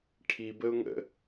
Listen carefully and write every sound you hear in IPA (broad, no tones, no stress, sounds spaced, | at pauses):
ʈʰ i b ə ʊ̯ ŋ ə̰